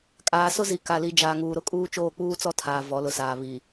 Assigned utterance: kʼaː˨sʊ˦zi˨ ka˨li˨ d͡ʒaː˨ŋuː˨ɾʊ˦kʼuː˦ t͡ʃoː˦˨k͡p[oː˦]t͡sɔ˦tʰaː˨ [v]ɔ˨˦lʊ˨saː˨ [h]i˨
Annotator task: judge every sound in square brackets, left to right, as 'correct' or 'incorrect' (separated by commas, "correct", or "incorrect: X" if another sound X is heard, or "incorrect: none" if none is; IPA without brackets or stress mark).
incorrect: uː˦, correct, incorrect: β